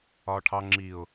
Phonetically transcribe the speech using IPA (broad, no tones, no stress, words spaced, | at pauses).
ɒːʈʰɑ ŋ͡ǁiʊ̯